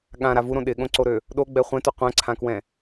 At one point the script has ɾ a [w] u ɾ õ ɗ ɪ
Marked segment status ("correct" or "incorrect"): incorrect